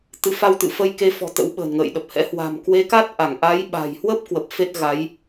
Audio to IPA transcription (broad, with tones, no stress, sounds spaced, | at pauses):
t̪ ɨ˨˦ f a˧ w t̪ ɨ̰˧˨ f ə˧ j k e˧ f ɔ̤˨˩ t̪ ə̰˧˥ w ɓ ə̤ː˨˩ n ŋ ə̰ː˧˨ j ɗ ə˨˩ p̚ h ɛ̰˧˥ h w a̤˨˩ m k w e˨˦ k a˦˥ t̚ ʔ a˧˩ ŋ ʔ a˨˦ j ɓ a̤˨˩ j h w ə˦˥ p̚ k w ə˨˩ p̚ f e˦˥ t̚ ɣ a˨˦ j